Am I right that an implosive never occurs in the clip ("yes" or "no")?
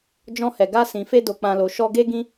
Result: yes